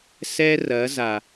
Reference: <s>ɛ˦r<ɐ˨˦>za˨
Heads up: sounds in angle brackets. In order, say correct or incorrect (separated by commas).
correct, correct